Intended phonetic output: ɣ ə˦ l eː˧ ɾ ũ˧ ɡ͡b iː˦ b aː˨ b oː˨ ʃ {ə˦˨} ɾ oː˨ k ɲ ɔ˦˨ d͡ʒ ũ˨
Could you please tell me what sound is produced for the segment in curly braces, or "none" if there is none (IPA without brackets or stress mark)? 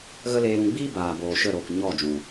ə˦˨